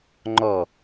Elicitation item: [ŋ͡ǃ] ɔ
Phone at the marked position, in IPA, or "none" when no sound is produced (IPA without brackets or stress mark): ŋ͡ǃ